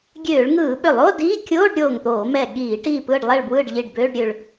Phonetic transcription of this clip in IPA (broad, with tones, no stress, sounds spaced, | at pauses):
ɡʲ øː˧˩˧ ɭ ŋ ɯː˧˩˧ ɓ ʏ˧˩˧ lˠ o˧˥˧ d iː˧˥˧ kʲ oː˧˥˧ ɖ ɾʲ oː˧˩ ŋ t̪ oː˧˩˧ m ɛ˧˩ ɠ iː˧˩˧ ʈ iː˧˩ p ɯː˧˩ ɖ lˠ ɛ˧˩ ɭ b w ɯː˧˩ ɖ ʎ i˧˩ ɖ b øː˧˥˧ ɖ ɾʲ ø˧˩ ɭ